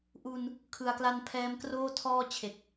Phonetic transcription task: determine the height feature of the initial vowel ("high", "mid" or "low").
high